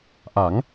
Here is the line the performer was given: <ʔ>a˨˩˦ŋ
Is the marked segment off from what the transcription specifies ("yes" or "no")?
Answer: no